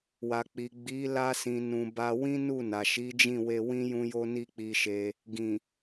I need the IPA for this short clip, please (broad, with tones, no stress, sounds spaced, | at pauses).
w a˨ k͡p i˨ ɡ͡b i˨˦ l a˧ s ĩ˨ n ũ˨ b a˧ w ĩ˦ n u˦˨ n a˨ ʃ i˨˦ d͡ʒ ĩ˦˨ w e˧ w ĩ˦ j ũ˦ j o˦ n i˦ k͡p i˧ ʃ e˧ | ɡ ĩ˨